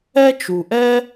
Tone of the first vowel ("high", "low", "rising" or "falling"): high